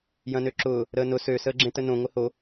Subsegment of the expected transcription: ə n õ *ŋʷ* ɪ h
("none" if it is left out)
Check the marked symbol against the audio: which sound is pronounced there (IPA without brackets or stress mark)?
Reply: ŋʷ